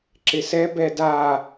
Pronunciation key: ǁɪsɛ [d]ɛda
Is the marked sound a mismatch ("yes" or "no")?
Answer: yes